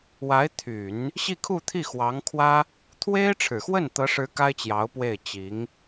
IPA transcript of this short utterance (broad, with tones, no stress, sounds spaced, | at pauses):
w a˧˥ ɪ̯ t̪ʰ y˨˩˦ n | ɕ i˥˧ kʰ u˥˧ t̪ʰ i˥˩ x w ɑ˧˥ ŋ kʰ w ä˥ | t̪ʰ w e˥ ɪ̯ ʈ͡ʂʰ ɻ̩˨˩ x w ə˥˩ n t̪ ɤ˧˥ ʂ ɻ̩˧˥ k a˥ ɪ̯ t͡ɕ j ɑ˧˥ ʊ̯ p w e˥˩ ɪ̯ t͡ɕ i˧˥ ŋ